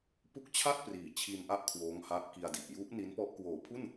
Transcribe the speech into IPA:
p u˦˥ k̚ t͡ɕʰ a˥˩ t̚ p r iː˩˦ t͡ɕʰ i˧ n ʔ a˦˥ ʔ kʰ w oː˦˥ ŋ h a˦˥ ʔ k i˧ a̯ d i˨˩ ʔ j u˦˥ ʔ n i˦˥ n p ɔ˦˥ ʔ k w oː˩˦ pʰ u˥˩ n

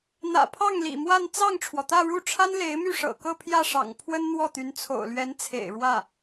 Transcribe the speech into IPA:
n̪ ä̰˨˩ pʰ ɑ˥˩ ŋ l ḭ˨˩ m w a˥˧ n t͡s ɑ˥˩ ŋ ʈ͡ʂʰ w ɔ˩ t̪ ä˥˧ ɻ u˥˩ ʈ͡ʂʰ a˥ n l e˧˥ ɪ̯ m y˥˩ ʂ ɤ̰˨˩ k ɤ˥˧ pʰ j ä˥˩ ʂ ɑ̰˨˩ ŋ pʰ w ə˥ n n̪ w ɔ˥˩ t̪ y˧˥ n t͡sʰ o̰˨˩ ʊ̯ l ɥ ɛ˧˥ n t͡sʰ ḛ˨˩ ɪ̯ ɻ w ä˥˩

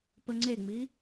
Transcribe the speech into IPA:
p ə ŋ͡ǀ e ŋ͡m i

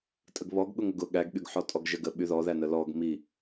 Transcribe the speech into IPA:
tʼ ə ɡ β ɔ ɡ ɠ ʊ ŋ ə ɡ ʊ ɠ æ ɡ ɠ y ɡ ħ ɔ tʼ ɔ ɡ ʒ ə ɡ ə ɓ y ð ɔ ð æ n ə l ɔ ɡ m i

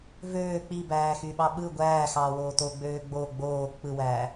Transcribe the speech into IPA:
v øː k͡p i b æː x y ɓ ɑ ɓ ɯ ɡʷ æː x ɑː w oː t o ɡ͡b øː ɡ͡b o ɡ͡b oː k͡p ɯ w æː

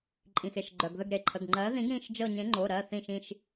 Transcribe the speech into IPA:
ǃʼ ĩ˩ x e˩ ʃ ɡ͡ǃ œ˩ ɡ ð ə˦˨ ɡ ɾ e˩ ǃʰ ə˩˧˩ ɡ ŋ͡ǃ ɜ˨˥ ð ĩ˨˥ ɡ ɾ ĩ˩˧˩ ʃ d͡ʒ ɤ˦˨ ɲ ẽ˨˥ ŋ͡ǃ o˩˧˩ ɾ ɜ˩˧˩ θ ĩ˦˨ ʃ ĩ˦˨ ʃ

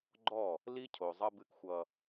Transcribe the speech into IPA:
ɡ͡ǃ ɔ˦˨ | l i˦ cʰ o˨ zˤ ʌ˦ b ɨ˦ k xʷ ʌ˦

